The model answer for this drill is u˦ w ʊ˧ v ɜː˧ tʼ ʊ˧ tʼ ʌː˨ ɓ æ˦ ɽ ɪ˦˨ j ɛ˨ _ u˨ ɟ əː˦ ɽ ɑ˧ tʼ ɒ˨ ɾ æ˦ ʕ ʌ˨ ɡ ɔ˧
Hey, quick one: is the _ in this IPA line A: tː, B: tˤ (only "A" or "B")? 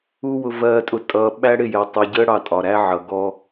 B